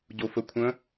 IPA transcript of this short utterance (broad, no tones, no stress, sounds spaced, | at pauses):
ɟ o f ə kʷʰ ə̃